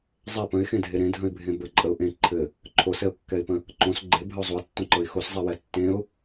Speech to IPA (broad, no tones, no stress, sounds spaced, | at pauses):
zˤ ɛ p ə̃ ɪ̯ x ẽ dʱ e ɾ ẽ dʱ ə̃ ɪ̯ bʱ ẽ b ə ǃʼ ə ʊ̯ ʔ ẽ ǃʰ ɘ | ǃʰ o s ɛ ʊ̯ kː ɛ ɪ̯ p ə̃ | ǃ õ s ɡ͡ǃ e bʱ ə ʊ̯ zˤ o ɪ̯ tː õ ǃ ɤ ɪ̯ x o s zˤ ɛ w ɛ tː ẽ ʊ̯